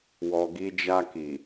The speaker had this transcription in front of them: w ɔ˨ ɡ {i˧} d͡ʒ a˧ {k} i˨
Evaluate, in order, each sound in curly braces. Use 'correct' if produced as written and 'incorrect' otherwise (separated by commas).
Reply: correct, correct